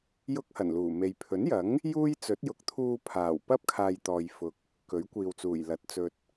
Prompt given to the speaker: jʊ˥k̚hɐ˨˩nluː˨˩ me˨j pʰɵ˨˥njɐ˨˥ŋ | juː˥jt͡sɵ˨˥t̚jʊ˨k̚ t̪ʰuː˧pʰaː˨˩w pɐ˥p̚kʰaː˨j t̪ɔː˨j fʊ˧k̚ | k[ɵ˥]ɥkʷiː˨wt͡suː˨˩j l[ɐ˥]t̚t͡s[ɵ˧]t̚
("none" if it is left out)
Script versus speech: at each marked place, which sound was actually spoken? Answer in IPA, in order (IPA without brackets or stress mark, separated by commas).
ɵ˨˥, ɐ˨˥, ɵ˧